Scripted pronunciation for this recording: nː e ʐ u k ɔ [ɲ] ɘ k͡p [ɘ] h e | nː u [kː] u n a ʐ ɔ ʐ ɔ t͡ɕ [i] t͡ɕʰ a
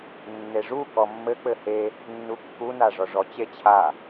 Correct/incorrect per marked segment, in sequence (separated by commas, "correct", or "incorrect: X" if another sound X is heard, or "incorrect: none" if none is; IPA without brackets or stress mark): incorrect: mː, correct, correct, incorrect: e